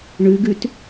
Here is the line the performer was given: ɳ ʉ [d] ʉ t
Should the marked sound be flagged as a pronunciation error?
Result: yes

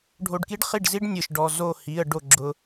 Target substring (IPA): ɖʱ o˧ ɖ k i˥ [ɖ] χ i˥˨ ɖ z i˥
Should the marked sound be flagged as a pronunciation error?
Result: no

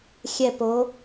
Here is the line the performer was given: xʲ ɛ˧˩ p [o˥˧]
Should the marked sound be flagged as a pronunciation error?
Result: yes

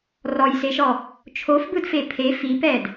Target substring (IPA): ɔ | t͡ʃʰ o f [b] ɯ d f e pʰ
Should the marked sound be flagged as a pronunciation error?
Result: no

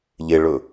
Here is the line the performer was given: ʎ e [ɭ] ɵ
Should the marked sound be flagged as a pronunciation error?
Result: no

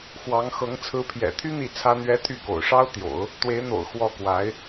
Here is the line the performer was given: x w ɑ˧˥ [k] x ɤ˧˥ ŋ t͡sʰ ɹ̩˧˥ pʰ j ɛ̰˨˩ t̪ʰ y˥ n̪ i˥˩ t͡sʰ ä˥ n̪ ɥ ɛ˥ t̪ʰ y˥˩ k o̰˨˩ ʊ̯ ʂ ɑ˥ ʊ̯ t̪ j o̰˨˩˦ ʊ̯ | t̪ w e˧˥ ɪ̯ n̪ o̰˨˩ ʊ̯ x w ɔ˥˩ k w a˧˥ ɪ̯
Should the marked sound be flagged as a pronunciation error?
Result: yes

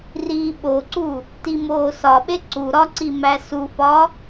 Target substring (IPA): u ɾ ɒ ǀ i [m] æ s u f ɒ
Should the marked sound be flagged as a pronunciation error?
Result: no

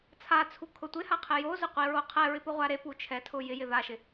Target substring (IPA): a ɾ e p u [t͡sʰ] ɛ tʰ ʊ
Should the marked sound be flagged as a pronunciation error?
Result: yes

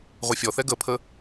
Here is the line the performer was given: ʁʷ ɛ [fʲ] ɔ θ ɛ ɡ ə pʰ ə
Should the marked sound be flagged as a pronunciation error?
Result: no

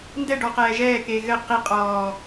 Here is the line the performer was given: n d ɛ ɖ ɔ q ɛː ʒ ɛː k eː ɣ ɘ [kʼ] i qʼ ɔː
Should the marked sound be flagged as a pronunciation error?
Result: yes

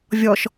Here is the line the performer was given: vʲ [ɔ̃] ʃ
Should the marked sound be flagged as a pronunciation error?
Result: yes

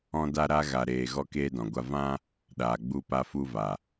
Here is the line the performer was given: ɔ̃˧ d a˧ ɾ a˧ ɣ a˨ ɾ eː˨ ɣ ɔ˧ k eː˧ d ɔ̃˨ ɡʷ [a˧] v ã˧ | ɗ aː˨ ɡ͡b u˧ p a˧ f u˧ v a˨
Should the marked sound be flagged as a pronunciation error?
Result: no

